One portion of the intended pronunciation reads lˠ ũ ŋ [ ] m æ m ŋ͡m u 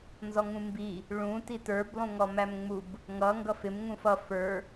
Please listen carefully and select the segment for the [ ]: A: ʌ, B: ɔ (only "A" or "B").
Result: B